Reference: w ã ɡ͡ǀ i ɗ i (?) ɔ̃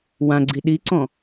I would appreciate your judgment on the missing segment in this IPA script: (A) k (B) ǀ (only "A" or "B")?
B